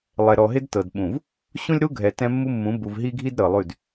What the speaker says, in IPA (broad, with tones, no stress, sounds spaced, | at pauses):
lˠ ɛ˨ ɾ ɔ˨ ɦ ɪ˦ d t ɤ˨ d ɓ ũ˨ v | ɕ ũ˦ lʲ ɾ u˦ ɡʱ ɛ˨ t ɛ̃˦ mː u˦ mː ũ˨˦ b u˨ v ɦ i˦ ɡʱ i˦ d ɾ ɤ˨ lˠ ʉ˦˨ d